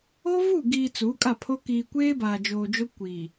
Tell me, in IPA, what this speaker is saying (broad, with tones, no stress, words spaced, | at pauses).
o˦vu˦˨ɡiː˨ t͡su˨˦kʼa˦˨pʰo˦ kiː˨kʷeː˦baː˨ d͡ʒoː˨d͡ʒo˦ kʷi˨